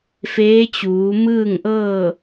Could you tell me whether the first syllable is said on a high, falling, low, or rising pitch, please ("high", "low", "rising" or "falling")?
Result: rising